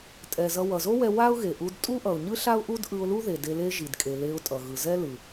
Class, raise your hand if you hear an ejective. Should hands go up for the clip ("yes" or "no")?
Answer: yes